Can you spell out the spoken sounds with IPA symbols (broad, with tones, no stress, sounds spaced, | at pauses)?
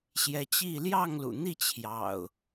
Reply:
ɕ j ɛ˨˦ t͡ɕ i˥˨ l j ɑ˥˨ ŋ l ṵ˨˩ n̪ i˥˨ t͡ɕʰ j ɑ̰˨˩ ʊ̯